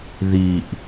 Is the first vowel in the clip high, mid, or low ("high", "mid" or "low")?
high